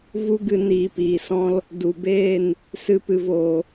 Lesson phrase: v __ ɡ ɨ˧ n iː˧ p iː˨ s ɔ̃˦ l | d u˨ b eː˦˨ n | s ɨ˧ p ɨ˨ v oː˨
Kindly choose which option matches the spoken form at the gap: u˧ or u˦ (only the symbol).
u˦